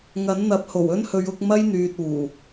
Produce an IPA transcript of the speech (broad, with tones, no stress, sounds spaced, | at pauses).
ŋ ɐ˨˥ n n̪ ɐ˨˥ p̚ h o˨˩ w ɵ˥ n h ɵ˨˧ ɥ ʊ˨˥ k̚ m ɐ˥ j n̪ yː˨ t̚ uː˨˩